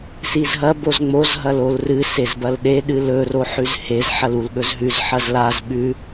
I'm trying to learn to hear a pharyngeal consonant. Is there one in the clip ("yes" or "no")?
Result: yes